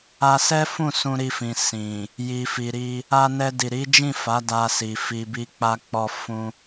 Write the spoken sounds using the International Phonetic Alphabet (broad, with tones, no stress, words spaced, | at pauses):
a˧sɛ˦fũ˦˨ sũ˧ɾi˧fĩ˨ sĩ˨ | ji˨fi˨ɾi˧ | a˧nɛ˧ di˨ɾi˨˦d͡ʒĩ˦˨ fa˨˦da˧si˨ fi˨bi˧k͡pa˧k͡pɔ˧ fũ˧